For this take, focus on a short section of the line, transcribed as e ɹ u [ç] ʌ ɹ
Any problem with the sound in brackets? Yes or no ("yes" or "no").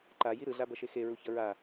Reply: no